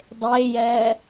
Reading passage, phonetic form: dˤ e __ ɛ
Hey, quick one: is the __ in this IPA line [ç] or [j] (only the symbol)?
j